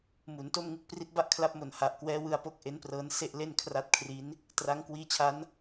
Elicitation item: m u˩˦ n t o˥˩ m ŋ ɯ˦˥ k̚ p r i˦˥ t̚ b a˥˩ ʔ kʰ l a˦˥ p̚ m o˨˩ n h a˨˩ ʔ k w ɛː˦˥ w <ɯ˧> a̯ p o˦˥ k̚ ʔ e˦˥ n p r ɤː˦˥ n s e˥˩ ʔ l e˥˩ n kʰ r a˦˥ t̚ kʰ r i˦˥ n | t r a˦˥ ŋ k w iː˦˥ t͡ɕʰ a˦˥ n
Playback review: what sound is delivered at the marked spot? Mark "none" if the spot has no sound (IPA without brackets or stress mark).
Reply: ɯ˧